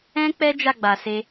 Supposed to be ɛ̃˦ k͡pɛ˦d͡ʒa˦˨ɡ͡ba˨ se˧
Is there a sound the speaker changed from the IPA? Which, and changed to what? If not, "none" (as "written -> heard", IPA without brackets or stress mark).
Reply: none